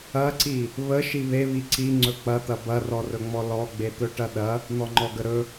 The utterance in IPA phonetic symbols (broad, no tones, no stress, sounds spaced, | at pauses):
ɐ ǀ i | β ə ʃ i β e β i ǀ i ŋ͡ǀ ɵ k͡p ɐ t̪ ɐ b ɐ r ɔ r ɵ ŋ͡m ɔ l ɔ ɡ͡b e t̪ ɵ ʈ ɐ ɗ ɐ | n̪ ɔ ŋ͡ǃ ɔ ɡ ə ɾ ɵ